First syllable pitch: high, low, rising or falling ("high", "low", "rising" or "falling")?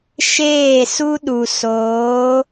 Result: falling